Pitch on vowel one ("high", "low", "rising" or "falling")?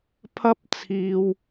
high